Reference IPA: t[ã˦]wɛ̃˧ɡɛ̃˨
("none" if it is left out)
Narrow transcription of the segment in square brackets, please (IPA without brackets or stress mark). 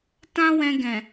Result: ã˦